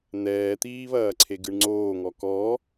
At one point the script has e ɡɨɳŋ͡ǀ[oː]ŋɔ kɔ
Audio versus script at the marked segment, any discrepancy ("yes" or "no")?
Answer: no